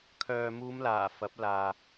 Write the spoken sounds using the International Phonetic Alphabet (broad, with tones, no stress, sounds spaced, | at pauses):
kʰ œː˨ m uː˨˧ m l aː˨˩ f ɐ˨˥ p̚ l aː˨